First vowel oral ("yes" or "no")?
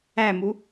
yes